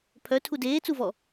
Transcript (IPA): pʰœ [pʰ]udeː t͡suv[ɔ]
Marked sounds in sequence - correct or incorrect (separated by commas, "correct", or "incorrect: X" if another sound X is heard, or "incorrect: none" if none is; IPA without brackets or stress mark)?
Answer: incorrect: tʰ, correct